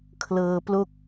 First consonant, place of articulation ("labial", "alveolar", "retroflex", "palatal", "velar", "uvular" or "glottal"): velar